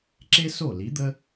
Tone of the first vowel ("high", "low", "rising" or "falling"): high